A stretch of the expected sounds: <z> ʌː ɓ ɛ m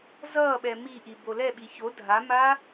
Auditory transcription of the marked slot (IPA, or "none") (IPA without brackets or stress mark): z